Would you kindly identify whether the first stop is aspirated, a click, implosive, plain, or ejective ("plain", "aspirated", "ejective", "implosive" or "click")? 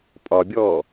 ejective